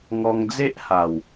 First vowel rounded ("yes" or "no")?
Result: yes